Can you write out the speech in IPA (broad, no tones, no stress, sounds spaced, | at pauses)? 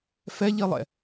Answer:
f ɛ ʎ i lˠ ɛ̰